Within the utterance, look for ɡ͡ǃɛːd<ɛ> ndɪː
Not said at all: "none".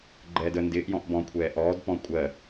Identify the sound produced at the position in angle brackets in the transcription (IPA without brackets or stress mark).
ə